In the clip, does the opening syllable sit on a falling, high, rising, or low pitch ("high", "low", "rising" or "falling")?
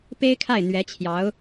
high